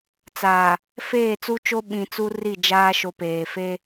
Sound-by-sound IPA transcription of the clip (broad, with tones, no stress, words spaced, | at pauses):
t͡saː˨ | feː˦˨t͡su˦t͡ʃo˦ ɓĩ˨ t͡su˦ri˦˨d͡ʒaː˦ ʃo˨peː˨fe˦